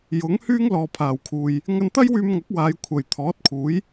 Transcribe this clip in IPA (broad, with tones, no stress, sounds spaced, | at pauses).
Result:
j ʊ˨˥ ŋ h yː˥ ŋ l ɔː˨ pʰ aː˨˩ w kʰ uː˨ j | ŋ ɐ˧ n t̪ ɐ˥ j w yː˧ m ŋ ɐ˨˥ k̚ w aː˨˧ j kʷʰ ɐ˨˩ j t̪ʰ ɔː˨˥ t̚ kʰ uː˨˥ j